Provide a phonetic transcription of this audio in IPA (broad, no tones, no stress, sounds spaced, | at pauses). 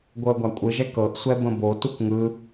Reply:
ɡʷ ɤ ə̯ ɡʷ a kʷʼ ɯ ʒ ɛ k ɤ ʔ sʷ ɛ b ə̃ b o t u k ŋ ɯ